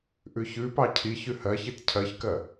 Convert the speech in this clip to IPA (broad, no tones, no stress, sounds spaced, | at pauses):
ʔ ʉ ç ʉ p ɑ cʰ i ç ʉ h ɜ ç i t cʰ ɜ ç k ɜ